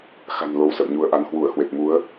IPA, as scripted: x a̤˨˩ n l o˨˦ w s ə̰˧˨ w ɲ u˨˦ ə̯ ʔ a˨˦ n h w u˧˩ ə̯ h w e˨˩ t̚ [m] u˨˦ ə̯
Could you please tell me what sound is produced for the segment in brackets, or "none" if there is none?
m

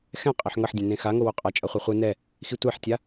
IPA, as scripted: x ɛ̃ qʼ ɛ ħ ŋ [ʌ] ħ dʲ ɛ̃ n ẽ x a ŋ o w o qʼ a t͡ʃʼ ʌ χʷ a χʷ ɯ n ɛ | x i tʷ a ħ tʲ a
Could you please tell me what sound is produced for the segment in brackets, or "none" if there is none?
ʌ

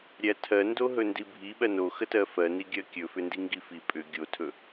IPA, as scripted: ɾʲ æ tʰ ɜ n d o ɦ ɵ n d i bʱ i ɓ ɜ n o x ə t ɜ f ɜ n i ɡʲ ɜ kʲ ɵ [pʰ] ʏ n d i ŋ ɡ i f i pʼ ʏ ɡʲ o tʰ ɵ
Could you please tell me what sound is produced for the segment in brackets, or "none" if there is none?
f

